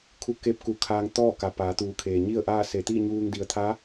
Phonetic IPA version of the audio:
kʰ u˧ k e˧˥ p̚ k u˧˩ kʰ aː˧ ŋ t̪ ɔː˥˨ k a˩ p aː˩˧ t̪ uː˩˧ kʰ eː˩ ɲ i˥˨ ə̯ ʔ aː˥˨ s e˧˩ t̪ iː˥˨ ɲ uː˧ ŋ d i˩ ə̯ t̪ʰ a˧˥

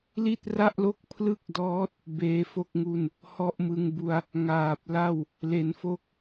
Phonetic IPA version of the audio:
l i˥˩ t̚ r a˥˩ ʔ l o˥˩ k̚ pʰ l ɯ˥˩ k̚ d ɔː˦˥ t̚ | b eː˦˥ f o˥˩ k̚ ŋ u˥˩ n | h ɔ˥˩ ʔ m ɯ˧ ŋ b u˧ a̯ | ŋ aː˨˩ p̚ l a˥˩ w | l e˩˦ n f o˦˥ k̚

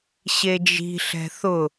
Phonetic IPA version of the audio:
ɕ e d͡ʒ i̤ ɬ ɛ̤ θ ʊ

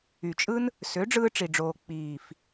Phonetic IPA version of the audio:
y˨ t͡ʃʼ ɯ˦ n | s ø˨˦ ɖ͡ʐ ɯː˧ ʈ͡ʂ i˨ ɖ͡ʐ oː˨ k͡p iː˨ f

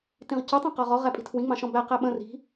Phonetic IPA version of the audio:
t ĩ ʁ c u tˤ ĩ q ɒ ʁ ɔ ʁ æ pʼ i̤ tʰ w ĩ ŋ͡m ɑ̃ ʃ ɔ̃ b æ q æ ɓ ə̃ r i̤

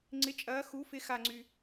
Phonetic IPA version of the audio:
ŋ͡ǀ ɪ˩˥ t͡ʃʼ ɐː˩˥ x u˩˥ f ɪ˧ x a˧˩ ŋ͡ǀ y˩

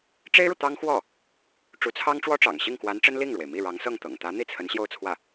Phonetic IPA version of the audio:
ʈ͡ʂ e˥ ɪ̯ ɻ u˨ t̪ ɑ˥ ŋ x w ɔ˥˩ | ʈ͡ʂ u˧˥ t͡sʰ ɑ˥ ŋ ʈ͡ʂ w ɔ˥ ʈ͡ʂ ɑ̰˨˩ ŋ ɕ i˥˩ ŋ k w a˧˥ n ʈ͡ʂ ə˥ n l i˥˩ ŋ ɻ w e˩ ɪ̯ m i˥˩ ɻ ɑ˧˥ ŋ s ɤ˥˩ ŋ t̪ ɤ̰˨˩ ŋ t̪ ä˧˥ n̪ i˥˩ t͡sʰ ə˧˥ n ɕ j o˥˧ ʊ̯ t͡sʰ w ä˥˩

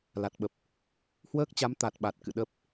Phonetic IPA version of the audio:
l a˨˩ t̚ ɓ ə˨˩ p̚ | h w əː˦˥ k̚ t͡ɕ a˨˦ m t̪ a˨˩ t̚ ɓ a˨˩ t̚ k ɨ̰˧˨ ɗ ə˦˥ p̚

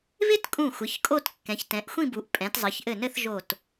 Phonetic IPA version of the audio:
β ɪ˥ t kʼ ũ˧˩ xʷ ɪ˩˧ ç kʼ o˥˧ t kː ɛ̃˩˧ ç t ɛ̃˩˧ ʔ xʷ ĩ˥˧ b u˩˧ ʔ pʼ ɛ̃˩˧ t zˤ ɘ˩˧ ç ʔ ɘ˧˩ n ɘ˥˧ θ ʒ o˧˩ t

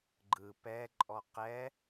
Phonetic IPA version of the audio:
ɡ͡ǃ ɯ p ɛ ǃʼ ɔ q ɛ

